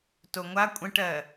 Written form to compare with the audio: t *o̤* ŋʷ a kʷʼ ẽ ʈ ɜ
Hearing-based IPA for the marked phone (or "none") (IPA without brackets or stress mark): o